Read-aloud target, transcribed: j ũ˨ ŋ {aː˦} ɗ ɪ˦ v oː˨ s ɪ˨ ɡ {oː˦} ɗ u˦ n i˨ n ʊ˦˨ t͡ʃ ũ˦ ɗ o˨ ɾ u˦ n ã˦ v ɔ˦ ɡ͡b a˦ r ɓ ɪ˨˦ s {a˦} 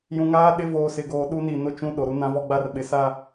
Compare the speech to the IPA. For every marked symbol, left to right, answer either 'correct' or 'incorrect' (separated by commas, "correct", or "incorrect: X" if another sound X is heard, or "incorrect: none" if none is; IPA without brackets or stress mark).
correct, incorrect: oː˨, correct